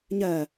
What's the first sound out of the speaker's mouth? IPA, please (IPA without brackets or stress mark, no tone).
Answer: ɲ